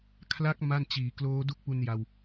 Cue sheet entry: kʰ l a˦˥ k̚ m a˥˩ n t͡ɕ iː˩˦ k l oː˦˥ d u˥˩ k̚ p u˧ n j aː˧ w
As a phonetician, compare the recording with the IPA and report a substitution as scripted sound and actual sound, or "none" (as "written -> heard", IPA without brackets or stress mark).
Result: aː˧ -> a˧